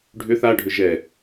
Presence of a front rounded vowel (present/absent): present